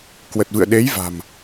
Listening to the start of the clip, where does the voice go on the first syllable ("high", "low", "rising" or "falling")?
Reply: low